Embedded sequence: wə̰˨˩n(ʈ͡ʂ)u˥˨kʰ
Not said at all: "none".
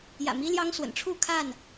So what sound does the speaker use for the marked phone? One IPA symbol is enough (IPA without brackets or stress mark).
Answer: ʈ͡ʂʰ